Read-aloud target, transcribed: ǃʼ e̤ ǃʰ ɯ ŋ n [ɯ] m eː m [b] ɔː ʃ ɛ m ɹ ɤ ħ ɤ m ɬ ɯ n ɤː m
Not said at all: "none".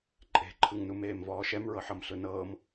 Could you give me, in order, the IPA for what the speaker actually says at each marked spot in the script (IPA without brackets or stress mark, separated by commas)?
u, v